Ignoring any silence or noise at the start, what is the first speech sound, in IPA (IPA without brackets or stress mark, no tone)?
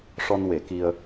ʂ